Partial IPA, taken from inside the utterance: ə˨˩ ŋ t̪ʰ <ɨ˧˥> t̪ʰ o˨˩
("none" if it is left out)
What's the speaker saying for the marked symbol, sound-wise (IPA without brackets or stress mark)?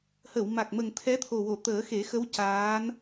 ɛ˧˥